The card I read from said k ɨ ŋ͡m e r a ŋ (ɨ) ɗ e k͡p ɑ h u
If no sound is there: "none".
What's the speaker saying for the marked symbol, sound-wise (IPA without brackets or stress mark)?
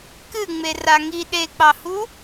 i